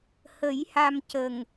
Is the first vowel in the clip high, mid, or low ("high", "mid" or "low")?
mid